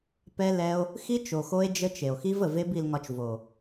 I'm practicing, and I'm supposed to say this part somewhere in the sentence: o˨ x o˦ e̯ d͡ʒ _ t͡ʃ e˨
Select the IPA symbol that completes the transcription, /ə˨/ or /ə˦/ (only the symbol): ə˦